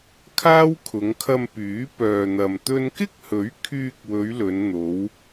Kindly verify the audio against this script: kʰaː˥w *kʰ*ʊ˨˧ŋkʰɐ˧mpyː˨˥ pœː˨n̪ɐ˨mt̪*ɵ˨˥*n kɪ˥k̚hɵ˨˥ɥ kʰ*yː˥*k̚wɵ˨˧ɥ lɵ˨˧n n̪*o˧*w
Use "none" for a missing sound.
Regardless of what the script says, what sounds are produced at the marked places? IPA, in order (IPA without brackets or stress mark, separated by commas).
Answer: kʰ, ɵ˥, yː˧, o˨˧